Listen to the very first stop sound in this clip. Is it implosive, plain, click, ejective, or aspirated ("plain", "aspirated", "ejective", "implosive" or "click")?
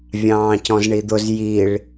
plain